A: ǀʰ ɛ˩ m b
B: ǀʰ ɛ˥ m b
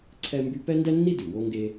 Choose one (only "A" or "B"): B